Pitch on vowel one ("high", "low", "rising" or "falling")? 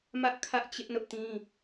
high